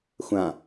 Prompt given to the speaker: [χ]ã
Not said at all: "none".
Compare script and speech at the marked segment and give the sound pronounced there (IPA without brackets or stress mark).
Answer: xʷ